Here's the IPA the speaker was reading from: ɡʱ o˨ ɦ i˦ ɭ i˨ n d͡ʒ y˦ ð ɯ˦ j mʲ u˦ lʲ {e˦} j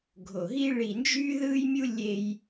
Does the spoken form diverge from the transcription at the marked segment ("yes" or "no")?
no